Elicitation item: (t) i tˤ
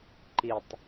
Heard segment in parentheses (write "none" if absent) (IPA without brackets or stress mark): ǃ